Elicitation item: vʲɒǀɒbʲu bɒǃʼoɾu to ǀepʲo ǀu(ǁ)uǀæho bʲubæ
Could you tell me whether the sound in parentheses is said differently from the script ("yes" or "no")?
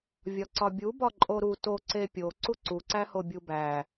yes